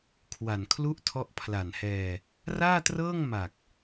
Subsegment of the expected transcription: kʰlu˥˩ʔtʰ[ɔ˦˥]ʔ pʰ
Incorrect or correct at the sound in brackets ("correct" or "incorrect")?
correct